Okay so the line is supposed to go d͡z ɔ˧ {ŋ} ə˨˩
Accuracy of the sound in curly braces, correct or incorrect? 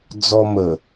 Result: incorrect